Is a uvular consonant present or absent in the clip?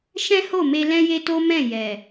absent